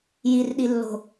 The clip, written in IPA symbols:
jirɗilːo̤

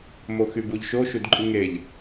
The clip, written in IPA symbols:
moxybuʎʃo ʃudǃʼɯŋeʎ

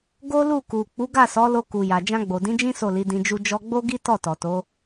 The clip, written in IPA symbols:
ɡo˦lu˦˨ku˨ k͡pu˨˦ɡa˦˨sɔ˨˦lo˧ ku˨ja˨ d͡ʒã˧ɡ͡bo˨dĩ˨˦d͡ʒĩ˦ so˦˨li˨˦dĩ˧d͡ʒu˦ d͡ʒɔ˧ɡ͡bo˦ɡi˦tɔ˦˨ tɔ˨to˨˦

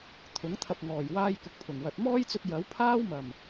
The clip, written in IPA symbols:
t̪ʰʊ˨˥ŋ t̪ʰɐ˨p̚ŋɔː˨˩j waː˧j kʊ˧k̚pʰʊ˨˩ŋwɐ˨˥t̚ mɔː˥jt͡sɵ˧t̚ jɐ˨˥wpʰaː˥w mɐ˨˩m

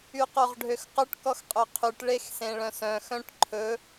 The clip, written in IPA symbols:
yqoʁɖʱøxqɵʈ kɔxqʼøqʰyʈ ɭexsẽɭœ̃sœ̃ xœ̃ʈǃʰɵ

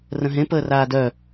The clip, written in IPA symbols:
rə̃ɦẽ pəːraːdœ

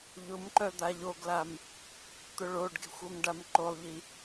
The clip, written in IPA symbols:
ʎʊmǃœ d̪aʎoɡlam | t̪ʊɭoɖɡe̤xʷ omɖamǃolˠʎi

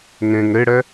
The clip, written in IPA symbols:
ŋẽŋ ɾeɽɛ

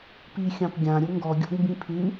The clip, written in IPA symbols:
pi xʲɑ̃pɡʲã ɾʲʊŋɡɔ ɡʲɔ̰ɡmbĩpʰʉ

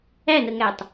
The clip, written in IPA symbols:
ænəŋætˤ

